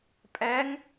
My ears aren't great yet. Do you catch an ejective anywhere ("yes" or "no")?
yes